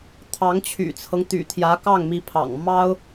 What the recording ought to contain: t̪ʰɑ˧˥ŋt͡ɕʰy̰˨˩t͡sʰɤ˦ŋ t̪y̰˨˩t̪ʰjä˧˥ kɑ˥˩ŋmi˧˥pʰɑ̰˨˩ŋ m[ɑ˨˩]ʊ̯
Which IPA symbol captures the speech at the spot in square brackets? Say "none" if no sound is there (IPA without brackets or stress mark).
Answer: ɑ˥